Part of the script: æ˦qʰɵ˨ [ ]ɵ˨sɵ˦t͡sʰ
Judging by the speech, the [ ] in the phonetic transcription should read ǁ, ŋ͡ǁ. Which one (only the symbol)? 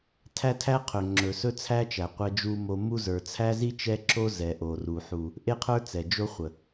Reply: ŋ͡ǁ